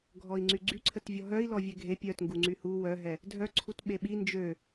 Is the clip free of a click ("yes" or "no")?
no